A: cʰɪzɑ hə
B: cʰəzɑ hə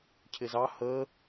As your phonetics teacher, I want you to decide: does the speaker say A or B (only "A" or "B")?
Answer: A